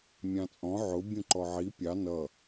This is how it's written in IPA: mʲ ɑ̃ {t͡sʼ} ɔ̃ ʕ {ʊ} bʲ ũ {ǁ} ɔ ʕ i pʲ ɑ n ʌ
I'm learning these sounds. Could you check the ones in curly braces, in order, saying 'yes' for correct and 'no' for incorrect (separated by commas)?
yes, yes, no